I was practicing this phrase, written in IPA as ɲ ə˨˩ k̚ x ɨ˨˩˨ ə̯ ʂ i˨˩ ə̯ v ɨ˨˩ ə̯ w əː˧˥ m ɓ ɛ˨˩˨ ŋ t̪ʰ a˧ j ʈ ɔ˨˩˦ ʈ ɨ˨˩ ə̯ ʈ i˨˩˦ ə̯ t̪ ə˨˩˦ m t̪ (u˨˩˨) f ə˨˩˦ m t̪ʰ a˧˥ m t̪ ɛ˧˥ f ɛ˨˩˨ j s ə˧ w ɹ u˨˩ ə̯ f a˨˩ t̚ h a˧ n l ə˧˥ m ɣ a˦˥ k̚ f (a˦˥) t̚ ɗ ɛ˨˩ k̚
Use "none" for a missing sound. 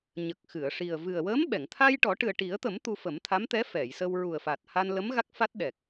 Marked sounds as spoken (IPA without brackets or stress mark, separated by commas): u˧, a˦˥